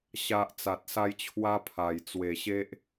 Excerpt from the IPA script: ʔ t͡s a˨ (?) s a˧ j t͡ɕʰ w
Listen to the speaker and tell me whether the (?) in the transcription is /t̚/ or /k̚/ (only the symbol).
t̚